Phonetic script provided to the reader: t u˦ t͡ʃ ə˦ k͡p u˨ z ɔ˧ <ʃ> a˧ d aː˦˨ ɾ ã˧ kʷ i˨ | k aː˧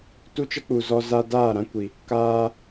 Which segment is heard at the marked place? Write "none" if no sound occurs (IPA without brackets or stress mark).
z